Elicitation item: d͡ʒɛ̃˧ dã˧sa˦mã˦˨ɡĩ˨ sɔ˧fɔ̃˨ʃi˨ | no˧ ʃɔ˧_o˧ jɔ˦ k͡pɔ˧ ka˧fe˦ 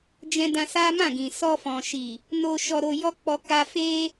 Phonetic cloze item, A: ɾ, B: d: A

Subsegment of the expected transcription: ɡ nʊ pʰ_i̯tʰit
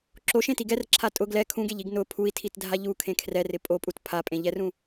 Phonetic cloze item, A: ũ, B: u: B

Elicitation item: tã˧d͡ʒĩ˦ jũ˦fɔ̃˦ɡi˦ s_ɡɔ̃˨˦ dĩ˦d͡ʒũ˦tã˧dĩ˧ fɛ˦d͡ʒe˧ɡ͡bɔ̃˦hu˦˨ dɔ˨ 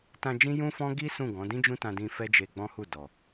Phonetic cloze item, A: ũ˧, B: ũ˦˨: B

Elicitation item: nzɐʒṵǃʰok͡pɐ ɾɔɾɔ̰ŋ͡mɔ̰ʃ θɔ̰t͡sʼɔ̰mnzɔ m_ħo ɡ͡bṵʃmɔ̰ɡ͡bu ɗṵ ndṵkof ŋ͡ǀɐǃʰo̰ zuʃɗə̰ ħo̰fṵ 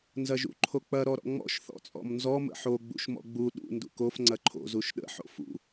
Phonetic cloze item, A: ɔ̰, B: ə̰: B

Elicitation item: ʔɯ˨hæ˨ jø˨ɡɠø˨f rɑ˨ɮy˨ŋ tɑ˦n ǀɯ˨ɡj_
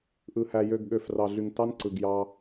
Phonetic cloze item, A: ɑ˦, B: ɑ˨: A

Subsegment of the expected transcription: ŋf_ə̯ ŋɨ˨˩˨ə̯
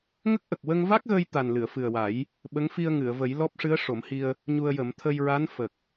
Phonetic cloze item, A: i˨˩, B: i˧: B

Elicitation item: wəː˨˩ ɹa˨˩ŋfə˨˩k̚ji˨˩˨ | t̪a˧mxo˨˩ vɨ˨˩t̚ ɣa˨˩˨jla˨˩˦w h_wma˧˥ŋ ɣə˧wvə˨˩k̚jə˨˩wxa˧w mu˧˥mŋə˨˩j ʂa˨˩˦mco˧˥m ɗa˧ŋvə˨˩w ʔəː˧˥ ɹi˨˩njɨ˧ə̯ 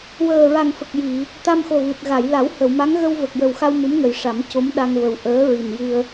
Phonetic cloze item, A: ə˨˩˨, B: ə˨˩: A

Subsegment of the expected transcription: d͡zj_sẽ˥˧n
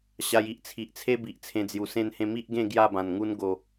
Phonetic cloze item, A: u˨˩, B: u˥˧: A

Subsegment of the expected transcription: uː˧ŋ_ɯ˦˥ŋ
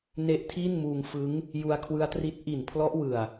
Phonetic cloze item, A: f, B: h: A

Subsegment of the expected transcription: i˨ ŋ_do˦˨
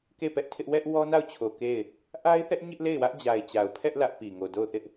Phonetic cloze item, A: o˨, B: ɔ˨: A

